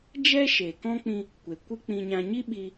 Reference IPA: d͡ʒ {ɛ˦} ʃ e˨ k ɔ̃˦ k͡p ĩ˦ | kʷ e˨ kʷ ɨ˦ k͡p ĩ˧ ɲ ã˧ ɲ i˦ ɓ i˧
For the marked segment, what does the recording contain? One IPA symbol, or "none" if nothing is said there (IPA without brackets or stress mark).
ɛ˦